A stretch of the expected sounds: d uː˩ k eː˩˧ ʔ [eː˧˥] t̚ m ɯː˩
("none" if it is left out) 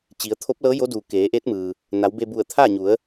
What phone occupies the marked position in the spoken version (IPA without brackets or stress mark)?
eː˧˥